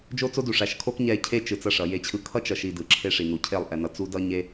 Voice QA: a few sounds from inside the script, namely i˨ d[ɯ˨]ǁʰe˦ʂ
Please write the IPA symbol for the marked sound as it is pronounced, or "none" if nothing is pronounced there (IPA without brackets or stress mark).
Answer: ɯ˨